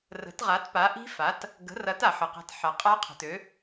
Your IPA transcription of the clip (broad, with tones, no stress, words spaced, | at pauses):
rə̤˩˥tʁa˩˥t pa˩˥ʔi̤˦˥ fa˩˥t | ɡə̤˩˥rɐ˩˥t a˩ħə˩qa̤˩˥tħa˩ qʼa˦˥ qʰə̤˩tø˩˥